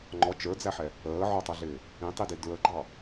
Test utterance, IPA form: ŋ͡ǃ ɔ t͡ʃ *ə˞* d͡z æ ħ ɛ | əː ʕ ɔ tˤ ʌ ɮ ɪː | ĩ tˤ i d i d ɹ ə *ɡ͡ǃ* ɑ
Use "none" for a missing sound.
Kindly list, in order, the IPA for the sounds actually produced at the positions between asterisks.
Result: ə˞, ɡ͡ǃ

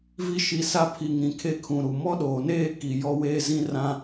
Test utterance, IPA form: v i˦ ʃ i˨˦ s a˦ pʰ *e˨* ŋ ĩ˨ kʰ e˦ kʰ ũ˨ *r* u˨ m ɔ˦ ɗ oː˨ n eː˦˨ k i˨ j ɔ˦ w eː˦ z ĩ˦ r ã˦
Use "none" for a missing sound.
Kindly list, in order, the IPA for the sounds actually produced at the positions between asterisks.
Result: i˨, ɾ

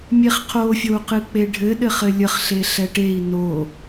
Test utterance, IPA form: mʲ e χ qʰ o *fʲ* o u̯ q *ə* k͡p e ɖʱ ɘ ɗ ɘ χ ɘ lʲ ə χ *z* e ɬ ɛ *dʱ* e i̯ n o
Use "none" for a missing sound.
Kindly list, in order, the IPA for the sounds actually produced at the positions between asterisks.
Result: fʲ, ɨ, ɬ, ʈ

